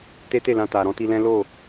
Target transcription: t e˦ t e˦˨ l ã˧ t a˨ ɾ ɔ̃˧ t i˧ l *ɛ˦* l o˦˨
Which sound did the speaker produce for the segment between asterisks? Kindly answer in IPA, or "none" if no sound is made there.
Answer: ɛ̃˦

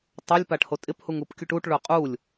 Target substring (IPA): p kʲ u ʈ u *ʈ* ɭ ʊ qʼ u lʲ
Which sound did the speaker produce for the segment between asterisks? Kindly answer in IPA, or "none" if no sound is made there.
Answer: ʈ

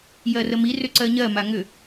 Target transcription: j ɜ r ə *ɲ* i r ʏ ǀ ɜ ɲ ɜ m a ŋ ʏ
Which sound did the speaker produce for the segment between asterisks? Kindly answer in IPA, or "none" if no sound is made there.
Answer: m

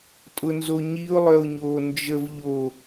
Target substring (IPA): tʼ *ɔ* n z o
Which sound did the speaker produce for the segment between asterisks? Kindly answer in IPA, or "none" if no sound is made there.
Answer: ʊ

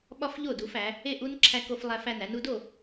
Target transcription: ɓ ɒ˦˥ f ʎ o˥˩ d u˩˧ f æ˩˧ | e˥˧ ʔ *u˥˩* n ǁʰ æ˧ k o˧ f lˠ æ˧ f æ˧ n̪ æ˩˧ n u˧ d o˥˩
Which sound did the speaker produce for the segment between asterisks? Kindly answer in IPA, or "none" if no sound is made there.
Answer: u˦˥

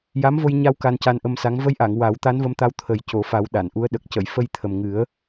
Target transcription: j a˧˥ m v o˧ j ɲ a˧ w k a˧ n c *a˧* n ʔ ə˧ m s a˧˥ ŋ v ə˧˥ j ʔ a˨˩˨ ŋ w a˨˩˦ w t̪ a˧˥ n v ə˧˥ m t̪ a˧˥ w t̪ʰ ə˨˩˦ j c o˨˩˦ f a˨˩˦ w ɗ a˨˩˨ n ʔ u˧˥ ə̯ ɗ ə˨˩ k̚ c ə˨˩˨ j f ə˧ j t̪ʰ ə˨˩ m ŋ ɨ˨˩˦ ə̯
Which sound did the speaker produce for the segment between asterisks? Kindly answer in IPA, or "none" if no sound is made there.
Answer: a˧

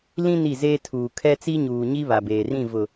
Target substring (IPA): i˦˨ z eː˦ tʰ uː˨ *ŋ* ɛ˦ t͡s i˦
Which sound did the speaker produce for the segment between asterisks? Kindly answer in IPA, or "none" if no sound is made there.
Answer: kʰ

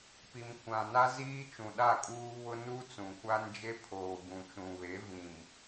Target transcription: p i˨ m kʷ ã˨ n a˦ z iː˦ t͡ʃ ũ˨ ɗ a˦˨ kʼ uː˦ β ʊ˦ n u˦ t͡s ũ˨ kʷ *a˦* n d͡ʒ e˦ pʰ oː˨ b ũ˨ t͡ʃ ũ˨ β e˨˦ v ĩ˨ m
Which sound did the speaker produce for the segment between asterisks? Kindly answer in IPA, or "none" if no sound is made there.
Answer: a˦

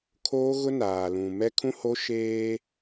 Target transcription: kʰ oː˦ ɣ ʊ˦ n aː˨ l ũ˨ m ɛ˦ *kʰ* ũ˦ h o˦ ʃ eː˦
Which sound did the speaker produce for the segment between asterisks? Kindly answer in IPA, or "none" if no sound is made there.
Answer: kʰ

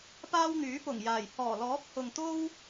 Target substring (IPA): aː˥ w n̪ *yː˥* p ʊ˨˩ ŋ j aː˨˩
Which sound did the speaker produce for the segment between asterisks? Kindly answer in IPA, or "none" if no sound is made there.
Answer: yː˨˥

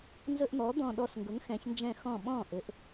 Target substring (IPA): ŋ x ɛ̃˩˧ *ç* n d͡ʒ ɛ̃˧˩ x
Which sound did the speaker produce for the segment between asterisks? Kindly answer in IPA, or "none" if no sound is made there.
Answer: ç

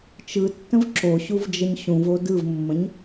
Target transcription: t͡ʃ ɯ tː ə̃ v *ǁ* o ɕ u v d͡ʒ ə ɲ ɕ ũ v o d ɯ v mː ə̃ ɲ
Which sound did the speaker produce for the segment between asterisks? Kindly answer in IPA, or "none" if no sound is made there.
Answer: ǁ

